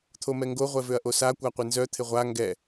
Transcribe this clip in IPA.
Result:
t̪ʰ o m ɛ ŋ ɡ o ʁʷ ɛ v ø ɐ̯ ʔ o s a kʷ a qʷ ɪ n z œ t̪ʰ ɪ ʁʷ a ŋ ɡ ɛ

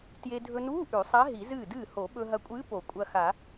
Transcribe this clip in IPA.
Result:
t j e˧ dʱ ɵ˧ n uː˧˥˧ ʔ ʉ˨˩˦ sˤ a˧˥ ɦ i˨˩˦ z ɨː˥˩ d ɨː˥˩ h o˨˩˦ ɓ ɵ˧ ɦ ɐ˧ kʷʼ ɨː˧˥ p o˨˩˦ kʷʼ ɐ˧ x a˨˩˦

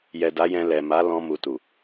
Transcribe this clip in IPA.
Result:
j ɛ˨ d a˨˦ j ɛ̃˧ l ɛ˨ m a˨˦ l ɔ̃˧ m u˨ t u˨

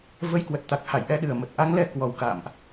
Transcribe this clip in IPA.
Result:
v ə˨˦ j k w ə˨˩ t̚ t̪ a˨˩ k̚ h a˧˩ j ʔ ɛ˨˦ ɗ ɨ˨˩ ə̯ m ə˨˩ t̚ ʔ a˨˦ ŋ l ɛ˧ k w ɔ˨˩ w k a̰ː˧˨ m ʔ

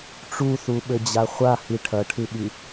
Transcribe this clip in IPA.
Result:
ʈ͡ʂ u θ u ɓ ɘ d͡ʑ a χʷ a h i ʈʰ ɐ ʈʰ ɨ ɓ i

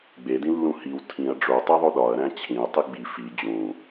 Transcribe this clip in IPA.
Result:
ɡ͡b e d ĩ lː ũ h i w tʰ ĩ ɐ̯ ɖ͡ʐ o tˤ e ðˤ o ɗ ɒ ɐ̯ ɾ æ̃ t͡ɕʰ ĩ ɐ̯ tˤ i ɡ͡b i f i d͡ʑ ũ

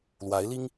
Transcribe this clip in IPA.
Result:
l w a˧˥ ɪ̯ l i˥ ŋ

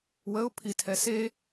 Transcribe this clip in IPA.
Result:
w ə ʊ̯ pʰ i tʰ ɛ s e

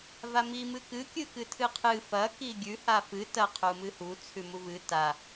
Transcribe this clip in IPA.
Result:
v a m i m ɨ k ɨ kʲ ɨ k ɨ tʰ ɨ qʰ ɨ f ɐ k i ɡʲ ʉ h a f ɨ t ɐ qʰ u m ɨ h u t͡sʰ ʉ m u v ɨ t a

